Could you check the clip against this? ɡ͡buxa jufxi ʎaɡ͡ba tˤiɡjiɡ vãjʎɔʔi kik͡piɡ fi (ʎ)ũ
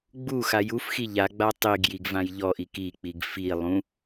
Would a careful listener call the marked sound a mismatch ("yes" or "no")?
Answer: yes